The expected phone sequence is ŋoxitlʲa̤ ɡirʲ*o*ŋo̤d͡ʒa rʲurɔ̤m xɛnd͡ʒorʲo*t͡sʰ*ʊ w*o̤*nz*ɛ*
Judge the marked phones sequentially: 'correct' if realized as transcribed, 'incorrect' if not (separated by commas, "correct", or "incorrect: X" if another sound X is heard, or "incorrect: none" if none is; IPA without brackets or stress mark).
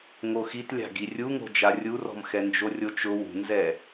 incorrect: u, incorrect: t͡ʃ, incorrect: ṳ, correct